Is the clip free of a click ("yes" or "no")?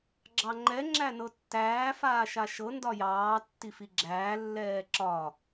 no